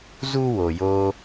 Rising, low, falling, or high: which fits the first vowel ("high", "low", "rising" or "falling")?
high